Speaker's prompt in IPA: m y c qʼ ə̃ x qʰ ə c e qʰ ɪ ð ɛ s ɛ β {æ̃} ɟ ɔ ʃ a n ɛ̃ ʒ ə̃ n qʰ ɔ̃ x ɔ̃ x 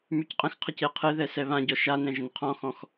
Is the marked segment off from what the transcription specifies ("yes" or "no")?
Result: yes